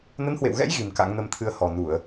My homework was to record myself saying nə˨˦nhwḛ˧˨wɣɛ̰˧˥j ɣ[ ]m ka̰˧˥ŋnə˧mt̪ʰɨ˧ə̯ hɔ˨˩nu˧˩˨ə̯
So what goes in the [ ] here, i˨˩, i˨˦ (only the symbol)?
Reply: i˨˩